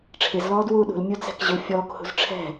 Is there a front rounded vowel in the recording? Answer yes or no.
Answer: yes